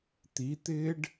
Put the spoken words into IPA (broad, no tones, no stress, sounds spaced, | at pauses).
t̪ i t̪ ɪː ɖ